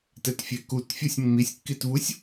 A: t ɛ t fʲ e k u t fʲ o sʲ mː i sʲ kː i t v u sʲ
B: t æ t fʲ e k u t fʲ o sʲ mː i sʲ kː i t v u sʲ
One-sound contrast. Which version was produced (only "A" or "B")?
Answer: A